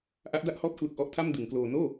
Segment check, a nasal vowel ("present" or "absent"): absent